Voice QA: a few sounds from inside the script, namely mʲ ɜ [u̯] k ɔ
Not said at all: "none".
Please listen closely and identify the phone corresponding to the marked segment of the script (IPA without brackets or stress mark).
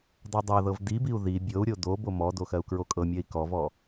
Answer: i̯